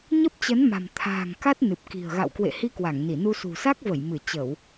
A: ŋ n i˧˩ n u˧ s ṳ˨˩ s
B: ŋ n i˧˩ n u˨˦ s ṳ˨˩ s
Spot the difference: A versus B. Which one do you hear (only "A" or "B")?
A